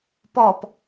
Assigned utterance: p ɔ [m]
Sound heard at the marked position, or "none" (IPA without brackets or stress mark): p